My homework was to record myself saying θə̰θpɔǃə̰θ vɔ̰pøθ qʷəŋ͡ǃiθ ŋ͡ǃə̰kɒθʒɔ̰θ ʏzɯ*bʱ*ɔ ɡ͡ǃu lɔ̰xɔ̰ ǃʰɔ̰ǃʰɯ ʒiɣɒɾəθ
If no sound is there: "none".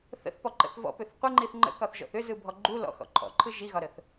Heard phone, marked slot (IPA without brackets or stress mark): bʱ